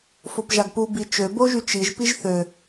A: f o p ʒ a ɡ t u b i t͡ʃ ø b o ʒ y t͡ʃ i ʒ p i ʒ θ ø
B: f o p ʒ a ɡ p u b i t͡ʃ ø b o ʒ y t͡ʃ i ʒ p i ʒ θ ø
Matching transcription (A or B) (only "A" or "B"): B